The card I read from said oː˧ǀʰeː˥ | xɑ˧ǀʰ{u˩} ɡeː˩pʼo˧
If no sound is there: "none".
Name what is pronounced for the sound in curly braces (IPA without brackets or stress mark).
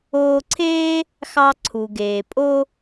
u˩